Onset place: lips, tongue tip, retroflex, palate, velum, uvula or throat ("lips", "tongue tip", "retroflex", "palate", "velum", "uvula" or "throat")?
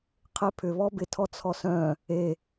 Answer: uvula